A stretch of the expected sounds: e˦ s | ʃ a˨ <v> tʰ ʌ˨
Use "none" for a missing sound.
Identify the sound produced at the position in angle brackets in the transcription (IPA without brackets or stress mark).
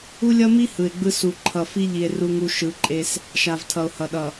v